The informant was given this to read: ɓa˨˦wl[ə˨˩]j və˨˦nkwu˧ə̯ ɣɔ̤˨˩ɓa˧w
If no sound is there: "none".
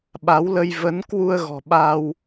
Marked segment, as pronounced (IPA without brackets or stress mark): ə˧